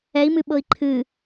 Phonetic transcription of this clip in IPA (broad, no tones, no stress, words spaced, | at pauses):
ɛi̯mɨɓɤi̯ ǃʰɨ